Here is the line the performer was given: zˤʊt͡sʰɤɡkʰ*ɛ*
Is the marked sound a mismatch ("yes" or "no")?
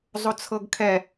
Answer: no